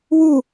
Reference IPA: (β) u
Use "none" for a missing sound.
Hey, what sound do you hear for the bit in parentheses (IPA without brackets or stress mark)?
w